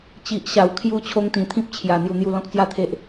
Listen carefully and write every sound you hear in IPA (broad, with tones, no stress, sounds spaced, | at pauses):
t͡ɕ i˨ ʔ ɕ a˨˩ w kʰ j u˧ t͡ɕʰ o˧ ŋ t̪ ĩ˨˩ t̪ʰ ĩ˦ p̚ t͡ɕʰ j a˨˩ n̪ j u˧ n̪ j u˦ l ɔ̃˦ k̚ t͡s j a˦ t̪ʰ e˦ ʔ